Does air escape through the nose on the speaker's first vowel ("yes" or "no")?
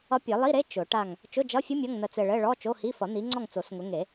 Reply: no